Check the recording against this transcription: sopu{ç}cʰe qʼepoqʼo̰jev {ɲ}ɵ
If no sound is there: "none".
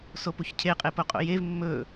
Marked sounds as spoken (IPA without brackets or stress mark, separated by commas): ç, mː